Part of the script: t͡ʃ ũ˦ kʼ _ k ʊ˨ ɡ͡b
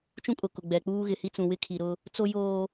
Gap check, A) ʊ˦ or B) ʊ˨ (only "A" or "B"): B